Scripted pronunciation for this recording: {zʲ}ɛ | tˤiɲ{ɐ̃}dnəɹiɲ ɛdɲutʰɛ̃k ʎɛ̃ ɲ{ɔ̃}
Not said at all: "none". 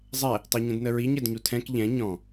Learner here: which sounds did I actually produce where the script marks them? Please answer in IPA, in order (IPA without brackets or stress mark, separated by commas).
zˤ, ə̃, ɔ̃